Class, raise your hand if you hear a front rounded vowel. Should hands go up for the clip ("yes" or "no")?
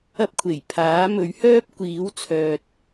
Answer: yes